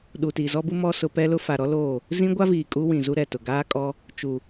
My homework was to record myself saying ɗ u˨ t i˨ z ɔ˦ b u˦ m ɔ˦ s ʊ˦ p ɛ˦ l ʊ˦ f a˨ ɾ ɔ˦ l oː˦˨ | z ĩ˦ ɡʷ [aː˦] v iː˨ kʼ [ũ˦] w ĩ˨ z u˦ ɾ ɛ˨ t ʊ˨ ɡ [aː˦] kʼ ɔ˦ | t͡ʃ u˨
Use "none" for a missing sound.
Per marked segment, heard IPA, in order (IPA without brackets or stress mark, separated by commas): a˦, u˦, aː˦